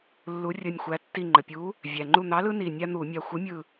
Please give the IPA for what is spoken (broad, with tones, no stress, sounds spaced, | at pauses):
lː u˨˥ rʲ ə˧˩ nʲ xʷ æ˨˥ tː i˧˩ ŋ͡ǃ ə˩ pʲ u˨˥ | vʲ æ˩ ŋ͡ǃ u˧˩ n̪ ɑ˨˥ l ɯ˦ n i˧˩ nʲ a˦ n̪ u˧˩˧ mʲ a˧˩ xʷ ɯ˨˥ mʲ ɯ˧˩